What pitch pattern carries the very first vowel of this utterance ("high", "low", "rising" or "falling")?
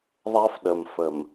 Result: high